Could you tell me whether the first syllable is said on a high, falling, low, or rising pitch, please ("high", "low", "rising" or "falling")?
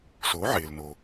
rising